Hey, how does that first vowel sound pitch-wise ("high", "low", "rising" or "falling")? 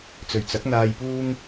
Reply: low